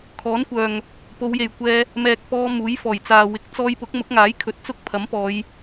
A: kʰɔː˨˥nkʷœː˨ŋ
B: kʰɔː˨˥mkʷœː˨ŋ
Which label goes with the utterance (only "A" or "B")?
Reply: A